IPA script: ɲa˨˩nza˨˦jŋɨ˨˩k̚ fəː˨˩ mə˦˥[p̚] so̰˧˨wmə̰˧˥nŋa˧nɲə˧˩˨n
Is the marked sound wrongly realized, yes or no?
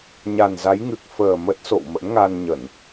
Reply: yes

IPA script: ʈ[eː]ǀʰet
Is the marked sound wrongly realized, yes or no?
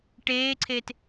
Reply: no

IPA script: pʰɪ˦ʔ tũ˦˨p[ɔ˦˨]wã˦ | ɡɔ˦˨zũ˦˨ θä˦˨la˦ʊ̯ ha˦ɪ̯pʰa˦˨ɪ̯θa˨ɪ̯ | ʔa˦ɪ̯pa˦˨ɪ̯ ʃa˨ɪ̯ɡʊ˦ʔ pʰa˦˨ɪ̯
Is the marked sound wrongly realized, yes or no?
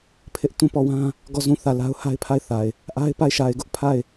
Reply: no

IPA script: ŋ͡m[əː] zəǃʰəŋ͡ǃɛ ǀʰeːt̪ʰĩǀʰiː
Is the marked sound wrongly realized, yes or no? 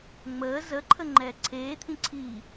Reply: no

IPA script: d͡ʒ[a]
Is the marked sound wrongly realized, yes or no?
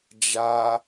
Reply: no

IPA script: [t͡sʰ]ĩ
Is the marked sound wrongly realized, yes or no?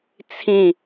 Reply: no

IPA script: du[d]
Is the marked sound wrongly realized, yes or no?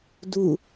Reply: yes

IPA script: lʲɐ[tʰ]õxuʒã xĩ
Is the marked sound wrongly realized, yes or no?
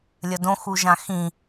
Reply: yes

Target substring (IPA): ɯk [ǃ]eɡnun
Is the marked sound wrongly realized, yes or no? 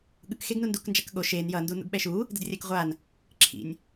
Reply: yes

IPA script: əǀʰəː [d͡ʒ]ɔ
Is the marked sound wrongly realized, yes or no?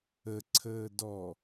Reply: yes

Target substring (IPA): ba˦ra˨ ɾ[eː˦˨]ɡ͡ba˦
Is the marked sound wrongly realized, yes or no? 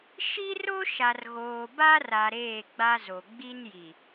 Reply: no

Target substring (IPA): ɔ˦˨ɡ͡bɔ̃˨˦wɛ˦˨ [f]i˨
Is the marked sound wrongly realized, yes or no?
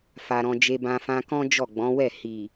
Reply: yes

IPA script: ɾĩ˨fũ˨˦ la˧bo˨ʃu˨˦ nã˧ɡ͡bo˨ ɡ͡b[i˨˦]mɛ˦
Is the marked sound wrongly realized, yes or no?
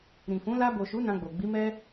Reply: no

